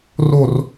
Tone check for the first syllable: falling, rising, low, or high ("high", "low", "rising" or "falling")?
falling